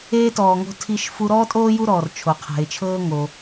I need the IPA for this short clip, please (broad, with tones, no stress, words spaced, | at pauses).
eː˥tɔː˨ŋo̤˦ tʰi˦ʃfu˦ ɾɔː˥tʼoː˥ju˦ɾɔː˩r t͡ʃʰo˩qʰɛ̤˩ɪ̯t͡ʃʰɤː˥ ŋo˩